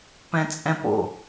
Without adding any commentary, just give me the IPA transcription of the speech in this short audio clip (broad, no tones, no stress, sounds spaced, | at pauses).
p ɛ̃ t͡sʼ ɛ̃ p o̰